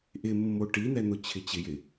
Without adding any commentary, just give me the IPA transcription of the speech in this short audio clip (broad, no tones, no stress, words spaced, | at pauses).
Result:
ʔɪ mːoʈin̪ɛ n̪ʊt͡ɕʰɪt͡ɕɪjɪ